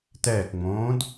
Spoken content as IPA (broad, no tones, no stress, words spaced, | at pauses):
tɛːkŋ͡mõːd